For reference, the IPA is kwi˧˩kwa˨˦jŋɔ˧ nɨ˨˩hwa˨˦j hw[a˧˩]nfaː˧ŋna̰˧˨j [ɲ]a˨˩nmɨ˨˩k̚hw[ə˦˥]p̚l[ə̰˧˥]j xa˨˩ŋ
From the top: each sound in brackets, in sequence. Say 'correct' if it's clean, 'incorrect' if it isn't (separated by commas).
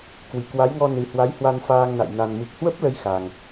incorrect, incorrect, correct, incorrect